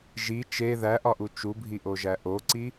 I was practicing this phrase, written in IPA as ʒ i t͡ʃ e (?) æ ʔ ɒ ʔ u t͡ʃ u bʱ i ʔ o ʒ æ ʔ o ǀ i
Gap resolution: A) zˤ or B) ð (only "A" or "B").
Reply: B